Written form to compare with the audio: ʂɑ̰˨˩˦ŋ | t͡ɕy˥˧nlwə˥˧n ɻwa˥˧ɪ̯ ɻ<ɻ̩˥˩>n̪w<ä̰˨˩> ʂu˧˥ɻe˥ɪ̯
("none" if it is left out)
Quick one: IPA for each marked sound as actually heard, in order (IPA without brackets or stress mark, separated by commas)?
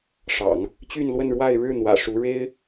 ɻ̩˥˩, ä̰˨˩